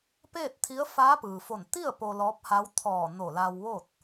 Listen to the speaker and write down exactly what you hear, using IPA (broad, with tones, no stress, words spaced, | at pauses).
peː˥˨t̚t̪ʰi˧˥ə̯ faː˧˥pɯː˩fo˧˩n t̪i˥˨ə̯ po˧lɔː˧˥p̚ha˧˥w t̪ʰɔː˧˩ no˧˩laː˧wʋo˥˨t̚